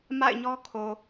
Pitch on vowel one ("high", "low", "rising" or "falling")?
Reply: falling